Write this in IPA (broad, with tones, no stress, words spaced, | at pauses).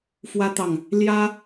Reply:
fwä˥t̪ɑ˨ŋ | ljä˥